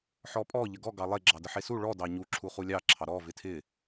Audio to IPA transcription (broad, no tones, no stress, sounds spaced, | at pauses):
ħ ɔ pʼ ɔ ʎ ə ɡ ɔ ɡ ɑ lˠ e ɡ͡ǁ ɑ d ə ħ e s u ɭ ɔ d ɑ ɲ u ǁʰ u χ u lʲ ɑ ǁʰ ɑ ɾ ɔ v ɪ tʰ ɪ